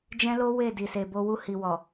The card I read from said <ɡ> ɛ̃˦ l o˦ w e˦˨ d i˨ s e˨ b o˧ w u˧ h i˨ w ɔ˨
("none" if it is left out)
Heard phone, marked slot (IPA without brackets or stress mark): d͡ʒ